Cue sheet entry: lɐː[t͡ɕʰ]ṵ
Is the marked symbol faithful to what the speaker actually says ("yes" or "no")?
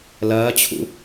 yes